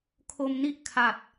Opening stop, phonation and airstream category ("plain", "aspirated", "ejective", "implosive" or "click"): aspirated